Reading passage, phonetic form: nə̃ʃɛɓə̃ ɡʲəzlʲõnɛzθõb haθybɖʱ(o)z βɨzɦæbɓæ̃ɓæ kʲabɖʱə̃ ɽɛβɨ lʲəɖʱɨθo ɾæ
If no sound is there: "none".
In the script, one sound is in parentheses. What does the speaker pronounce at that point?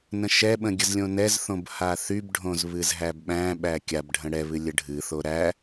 õ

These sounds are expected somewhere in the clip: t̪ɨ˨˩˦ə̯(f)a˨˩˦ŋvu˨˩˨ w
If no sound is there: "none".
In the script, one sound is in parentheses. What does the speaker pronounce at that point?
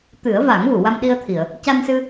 v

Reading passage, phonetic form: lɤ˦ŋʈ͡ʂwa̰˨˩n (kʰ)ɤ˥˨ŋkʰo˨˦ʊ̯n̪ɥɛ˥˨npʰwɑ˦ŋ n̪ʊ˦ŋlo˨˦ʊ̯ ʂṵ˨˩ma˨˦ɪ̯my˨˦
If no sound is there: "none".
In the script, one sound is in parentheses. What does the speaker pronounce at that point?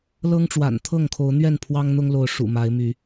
t̪ʰ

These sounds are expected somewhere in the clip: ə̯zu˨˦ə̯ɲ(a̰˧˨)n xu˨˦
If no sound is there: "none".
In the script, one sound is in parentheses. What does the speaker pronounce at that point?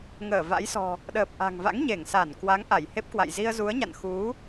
a̰˧˨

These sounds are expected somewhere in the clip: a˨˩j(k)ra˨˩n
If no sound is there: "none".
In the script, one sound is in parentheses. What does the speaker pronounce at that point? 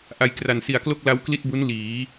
k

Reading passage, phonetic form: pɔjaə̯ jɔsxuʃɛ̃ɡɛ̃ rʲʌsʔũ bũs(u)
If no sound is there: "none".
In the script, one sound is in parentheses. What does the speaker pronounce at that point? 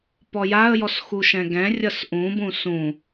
ũ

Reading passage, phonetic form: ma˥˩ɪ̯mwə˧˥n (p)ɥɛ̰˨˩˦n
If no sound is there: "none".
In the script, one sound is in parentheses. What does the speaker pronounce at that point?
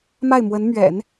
m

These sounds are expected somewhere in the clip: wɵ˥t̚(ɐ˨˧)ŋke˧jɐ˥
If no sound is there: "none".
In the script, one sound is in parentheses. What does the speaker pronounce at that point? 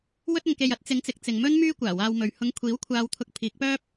ɐ˨˧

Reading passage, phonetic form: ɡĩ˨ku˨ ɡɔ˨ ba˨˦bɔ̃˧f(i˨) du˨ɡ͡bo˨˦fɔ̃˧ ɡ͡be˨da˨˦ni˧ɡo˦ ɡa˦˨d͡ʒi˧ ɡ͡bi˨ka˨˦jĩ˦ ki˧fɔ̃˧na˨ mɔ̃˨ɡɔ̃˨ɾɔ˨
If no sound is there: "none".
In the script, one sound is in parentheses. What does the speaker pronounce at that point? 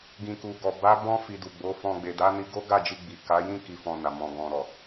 i˨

